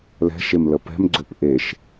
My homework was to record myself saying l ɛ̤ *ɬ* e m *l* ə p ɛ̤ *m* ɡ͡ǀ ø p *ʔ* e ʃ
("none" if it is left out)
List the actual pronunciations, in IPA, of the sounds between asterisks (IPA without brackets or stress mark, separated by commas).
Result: ʃ, l, m, ʔ